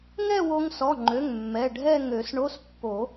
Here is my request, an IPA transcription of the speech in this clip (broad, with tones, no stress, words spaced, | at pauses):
ŋɛ˥˧wo˧ŋsɔ˩˧˩ŋ͡ǃø˩˧˩ŋ mːɛ˩˧˩ ɖʱɛ˥˧ŋø˨˩˦sɳo˧˥˧s pːo˨˩˦